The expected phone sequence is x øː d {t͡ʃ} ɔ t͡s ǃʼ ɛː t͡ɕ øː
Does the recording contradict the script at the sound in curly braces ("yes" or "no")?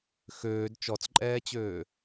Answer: no